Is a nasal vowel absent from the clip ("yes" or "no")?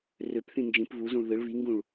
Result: no